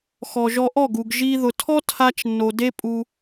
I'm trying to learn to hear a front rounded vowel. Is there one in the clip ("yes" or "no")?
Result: no